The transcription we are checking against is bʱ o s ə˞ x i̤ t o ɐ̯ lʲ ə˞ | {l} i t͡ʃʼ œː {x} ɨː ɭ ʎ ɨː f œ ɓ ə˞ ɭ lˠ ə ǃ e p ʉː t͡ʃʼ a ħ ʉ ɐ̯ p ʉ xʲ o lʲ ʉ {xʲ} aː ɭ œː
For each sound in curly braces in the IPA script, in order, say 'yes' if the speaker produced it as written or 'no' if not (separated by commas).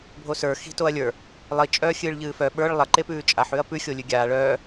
no, no, no